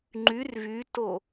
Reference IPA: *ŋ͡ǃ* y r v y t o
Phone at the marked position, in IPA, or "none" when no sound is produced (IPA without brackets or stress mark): ŋ͡ǃ